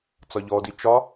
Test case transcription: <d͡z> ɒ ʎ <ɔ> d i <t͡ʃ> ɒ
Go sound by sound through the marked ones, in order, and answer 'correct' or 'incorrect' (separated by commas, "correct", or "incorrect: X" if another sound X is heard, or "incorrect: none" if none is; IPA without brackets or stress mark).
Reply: incorrect: t͡s, correct, correct